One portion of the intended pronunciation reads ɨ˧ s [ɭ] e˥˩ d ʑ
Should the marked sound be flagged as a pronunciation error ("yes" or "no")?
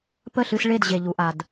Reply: no